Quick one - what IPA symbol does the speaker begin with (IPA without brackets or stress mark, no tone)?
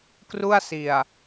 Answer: k